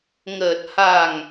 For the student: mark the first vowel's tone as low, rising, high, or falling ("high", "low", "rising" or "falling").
low